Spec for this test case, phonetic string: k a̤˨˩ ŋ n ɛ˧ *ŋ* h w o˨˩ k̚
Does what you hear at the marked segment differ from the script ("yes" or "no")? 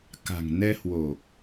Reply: yes